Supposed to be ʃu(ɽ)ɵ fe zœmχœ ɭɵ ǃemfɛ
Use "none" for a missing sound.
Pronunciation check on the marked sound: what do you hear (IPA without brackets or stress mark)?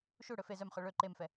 ɽ